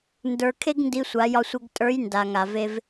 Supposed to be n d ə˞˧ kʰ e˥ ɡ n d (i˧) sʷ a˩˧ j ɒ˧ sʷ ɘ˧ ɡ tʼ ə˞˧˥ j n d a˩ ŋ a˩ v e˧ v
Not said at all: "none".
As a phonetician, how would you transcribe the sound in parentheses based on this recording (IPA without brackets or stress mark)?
i˧